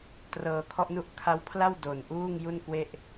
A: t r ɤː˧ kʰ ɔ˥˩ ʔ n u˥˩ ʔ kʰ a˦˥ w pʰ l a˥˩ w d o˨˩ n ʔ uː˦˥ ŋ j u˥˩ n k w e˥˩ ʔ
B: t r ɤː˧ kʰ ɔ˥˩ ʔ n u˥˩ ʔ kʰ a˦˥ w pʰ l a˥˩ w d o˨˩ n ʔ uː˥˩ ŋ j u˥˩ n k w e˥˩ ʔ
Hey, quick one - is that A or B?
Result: B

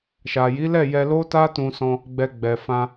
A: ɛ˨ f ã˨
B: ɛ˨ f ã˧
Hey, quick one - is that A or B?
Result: B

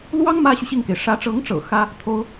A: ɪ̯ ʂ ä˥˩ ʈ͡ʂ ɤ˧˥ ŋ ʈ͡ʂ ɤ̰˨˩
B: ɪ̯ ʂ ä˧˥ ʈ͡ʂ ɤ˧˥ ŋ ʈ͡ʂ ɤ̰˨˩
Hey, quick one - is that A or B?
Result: B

